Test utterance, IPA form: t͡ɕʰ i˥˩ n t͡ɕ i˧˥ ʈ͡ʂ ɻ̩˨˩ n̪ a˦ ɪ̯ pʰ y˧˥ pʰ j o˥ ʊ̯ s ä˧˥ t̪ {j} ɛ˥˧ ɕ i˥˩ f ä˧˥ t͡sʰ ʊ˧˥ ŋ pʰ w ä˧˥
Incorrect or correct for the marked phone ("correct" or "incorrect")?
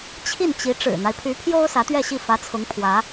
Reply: incorrect